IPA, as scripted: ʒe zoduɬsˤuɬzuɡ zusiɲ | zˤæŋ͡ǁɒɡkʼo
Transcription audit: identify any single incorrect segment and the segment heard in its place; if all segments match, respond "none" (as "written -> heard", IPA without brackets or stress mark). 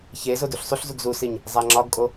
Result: ʒ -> ç